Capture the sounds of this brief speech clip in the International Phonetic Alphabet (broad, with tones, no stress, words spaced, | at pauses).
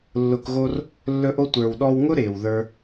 lːʊ˧kɣo˦r | lːɵ˧ʔo˧ tʷə˞˨wɗɔ˧wŋʊ˦ ɾɪː˨wðə˞˦